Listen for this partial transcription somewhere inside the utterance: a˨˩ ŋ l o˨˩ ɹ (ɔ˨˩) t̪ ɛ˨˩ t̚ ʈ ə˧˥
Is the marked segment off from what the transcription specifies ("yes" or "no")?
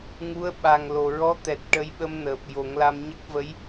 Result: yes